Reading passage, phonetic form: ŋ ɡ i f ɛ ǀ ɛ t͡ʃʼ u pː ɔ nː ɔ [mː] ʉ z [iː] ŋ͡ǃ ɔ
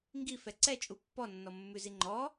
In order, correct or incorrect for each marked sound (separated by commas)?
correct, incorrect